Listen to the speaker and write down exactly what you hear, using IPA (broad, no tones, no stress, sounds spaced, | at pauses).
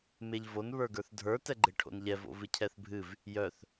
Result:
m e ʎ v o n β ə˞ ɡ ə˞ θ dʱ ə˞ t ɛ ɡ͡ǃ e ʈʰ o̰ n ʎ ɛ v o̰ v ɨ cʰ ɛ θ bʱ ɨ v | j œ θ